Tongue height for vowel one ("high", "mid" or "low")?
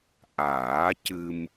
low